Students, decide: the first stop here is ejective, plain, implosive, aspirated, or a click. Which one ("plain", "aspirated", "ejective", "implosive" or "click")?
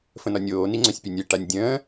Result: click